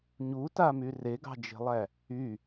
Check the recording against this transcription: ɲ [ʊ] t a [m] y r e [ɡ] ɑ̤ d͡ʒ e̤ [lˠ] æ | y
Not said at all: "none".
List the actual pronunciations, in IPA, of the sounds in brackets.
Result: u, m, ɡ, lˠ

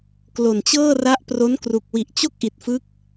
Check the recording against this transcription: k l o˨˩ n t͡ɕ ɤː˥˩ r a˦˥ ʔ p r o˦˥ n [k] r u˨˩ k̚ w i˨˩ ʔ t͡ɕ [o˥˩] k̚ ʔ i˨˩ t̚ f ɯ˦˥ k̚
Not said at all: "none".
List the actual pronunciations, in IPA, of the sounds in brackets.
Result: k, o˥˩

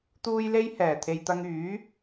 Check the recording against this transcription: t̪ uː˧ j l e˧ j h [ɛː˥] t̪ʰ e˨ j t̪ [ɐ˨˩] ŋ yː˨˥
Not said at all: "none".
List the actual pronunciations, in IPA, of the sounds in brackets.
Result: ɛː˨˩, ɐ˧

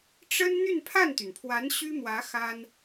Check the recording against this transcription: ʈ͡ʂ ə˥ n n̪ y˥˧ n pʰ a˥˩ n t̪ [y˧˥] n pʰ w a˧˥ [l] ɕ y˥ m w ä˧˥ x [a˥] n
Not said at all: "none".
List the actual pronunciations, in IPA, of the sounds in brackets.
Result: y˩, n, a˥

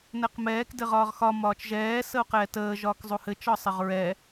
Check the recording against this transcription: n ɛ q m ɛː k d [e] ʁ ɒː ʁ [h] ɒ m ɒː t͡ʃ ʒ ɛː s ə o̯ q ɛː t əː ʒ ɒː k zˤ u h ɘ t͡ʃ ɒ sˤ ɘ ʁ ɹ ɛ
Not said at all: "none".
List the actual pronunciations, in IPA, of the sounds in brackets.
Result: ɘ, x

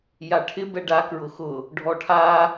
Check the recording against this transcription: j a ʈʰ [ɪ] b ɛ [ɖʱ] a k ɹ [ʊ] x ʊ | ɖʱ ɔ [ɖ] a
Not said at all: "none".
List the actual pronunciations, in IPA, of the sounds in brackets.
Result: ɪ, ɖ, ʊ, ʈʰ

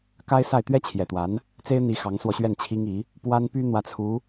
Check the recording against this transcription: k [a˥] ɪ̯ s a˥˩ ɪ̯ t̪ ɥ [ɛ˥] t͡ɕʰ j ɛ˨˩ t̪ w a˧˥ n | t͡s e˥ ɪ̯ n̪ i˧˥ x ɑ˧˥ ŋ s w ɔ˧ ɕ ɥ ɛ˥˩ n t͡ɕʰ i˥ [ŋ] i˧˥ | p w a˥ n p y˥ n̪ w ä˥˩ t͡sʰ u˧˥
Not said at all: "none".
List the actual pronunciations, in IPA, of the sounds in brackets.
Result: a˥, ɛ˥, ŋ

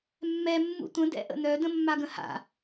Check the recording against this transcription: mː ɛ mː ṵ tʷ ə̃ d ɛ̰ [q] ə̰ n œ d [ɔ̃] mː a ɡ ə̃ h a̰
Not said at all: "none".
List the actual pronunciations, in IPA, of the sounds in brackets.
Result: ʔ, ə̃

